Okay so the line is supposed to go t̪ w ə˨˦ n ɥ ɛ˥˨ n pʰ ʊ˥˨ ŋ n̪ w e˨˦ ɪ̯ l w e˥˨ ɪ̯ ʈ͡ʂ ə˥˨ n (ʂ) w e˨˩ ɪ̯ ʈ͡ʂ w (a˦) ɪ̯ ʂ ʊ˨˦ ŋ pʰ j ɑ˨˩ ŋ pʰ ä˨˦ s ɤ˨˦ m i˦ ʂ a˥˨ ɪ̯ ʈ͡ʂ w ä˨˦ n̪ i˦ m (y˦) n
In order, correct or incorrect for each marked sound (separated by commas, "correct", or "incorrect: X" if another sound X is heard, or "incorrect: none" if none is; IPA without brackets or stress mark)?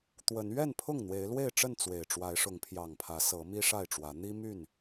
incorrect: t͡s, incorrect: a˨˦, incorrect: y˥˨